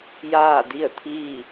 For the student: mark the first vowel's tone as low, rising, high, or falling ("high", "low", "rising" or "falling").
falling